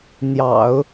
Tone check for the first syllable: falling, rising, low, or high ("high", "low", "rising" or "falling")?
low